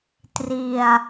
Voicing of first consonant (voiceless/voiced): voiceless